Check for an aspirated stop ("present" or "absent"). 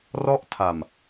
present